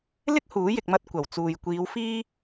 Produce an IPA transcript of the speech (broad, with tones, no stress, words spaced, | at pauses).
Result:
lɪ˥k̚ huː˨˥jɪ˨k̚mɐ˧t̚ kʷɐ˨˩wt͡suː˨j kʷiː˨˧w fiː˥